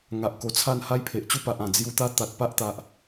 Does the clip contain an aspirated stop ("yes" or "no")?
yes